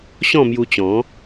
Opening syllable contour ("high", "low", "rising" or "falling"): falling